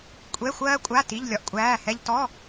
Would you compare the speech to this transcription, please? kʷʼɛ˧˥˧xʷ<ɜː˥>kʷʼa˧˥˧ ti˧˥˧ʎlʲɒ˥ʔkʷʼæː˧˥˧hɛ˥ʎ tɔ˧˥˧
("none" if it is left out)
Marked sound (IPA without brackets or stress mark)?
ɜː˥